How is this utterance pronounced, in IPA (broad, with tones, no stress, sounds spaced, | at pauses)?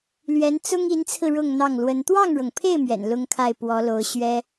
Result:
l ɥ ɛ˧˥ n t͡s ʊ˥ ŋ i˧˥ n t͡sʰ ɹ̩˧ ɻ ʊ˥˧ ŋ n̪ ɑ˥˩ ŋ l w ə˧˥ n t̪ w ɑ˥˩ ŋ ɻ ɤ˩ ŋ pʰ e˥˩ ɪ̯ m ɥ ɛ̰˨˩ n l ʊ˥ ŋ kʰ a˥˩ ɪ̯ p w ɔ˧˥ l o˧˥ ʊ̯ ɕ ɥ ɛ˥